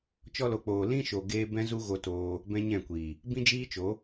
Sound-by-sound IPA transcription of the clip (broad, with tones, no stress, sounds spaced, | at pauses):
t͡ʃ ɔ˧ l o˨ k͡p oː˨ l ĩ˧ ʃ o˨ ɡ eː˦ b ɛ̃˦ z u˦ ɣ o˧ t oː˧ | b ɛ̃˦ ɲ ɛ̃˦˨ kʷ iː˨ | b ĩ˦ d͡ʒ iː˦ t͡ʃ o˨˦